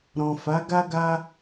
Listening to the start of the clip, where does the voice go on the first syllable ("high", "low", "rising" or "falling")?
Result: low